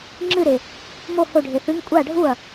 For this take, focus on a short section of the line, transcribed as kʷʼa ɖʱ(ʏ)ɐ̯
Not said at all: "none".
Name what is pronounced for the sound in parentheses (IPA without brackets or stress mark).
u